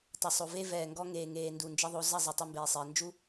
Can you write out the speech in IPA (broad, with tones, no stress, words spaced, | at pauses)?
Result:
tˤɘ˨sˤo˨ve˦ vɛː˨ŋɡɔ˦ŋeː˨ ŋeː˨ ndu˨nd͡ʒɘ˦ðˤo˨˦ zɐ˦˨ zˤe˨tˤɘ˦mbeː˨sˤɘː˨ nd͡ʒu˦